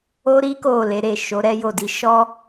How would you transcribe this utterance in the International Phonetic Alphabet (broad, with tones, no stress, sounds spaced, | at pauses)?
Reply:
o˦ ɾ i˦ k o˦˨ l e˨˦ ɾ e˦˨ ʃ o˨˦ ɾ ɛ˦ j o˦˨ d i˧ ʃ ɔ˦